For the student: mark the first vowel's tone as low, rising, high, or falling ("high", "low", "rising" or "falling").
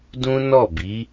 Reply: high